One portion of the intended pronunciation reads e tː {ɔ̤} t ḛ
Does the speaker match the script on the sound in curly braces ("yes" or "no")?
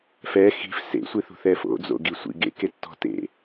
yes